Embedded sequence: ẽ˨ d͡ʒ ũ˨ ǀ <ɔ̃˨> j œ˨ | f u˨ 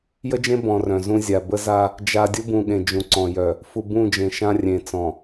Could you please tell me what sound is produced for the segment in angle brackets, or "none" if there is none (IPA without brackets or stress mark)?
ɔ̃˨